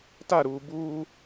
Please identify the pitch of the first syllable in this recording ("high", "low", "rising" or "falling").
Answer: falling